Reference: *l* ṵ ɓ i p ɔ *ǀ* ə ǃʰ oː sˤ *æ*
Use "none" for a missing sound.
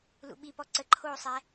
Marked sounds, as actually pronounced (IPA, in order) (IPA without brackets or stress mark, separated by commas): l, ǀ, æ